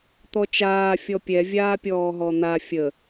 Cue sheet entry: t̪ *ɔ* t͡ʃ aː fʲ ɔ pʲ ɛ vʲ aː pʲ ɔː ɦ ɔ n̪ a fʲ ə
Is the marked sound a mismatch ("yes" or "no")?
no